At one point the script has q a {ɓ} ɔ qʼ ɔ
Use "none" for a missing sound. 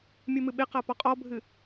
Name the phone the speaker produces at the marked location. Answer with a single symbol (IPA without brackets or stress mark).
p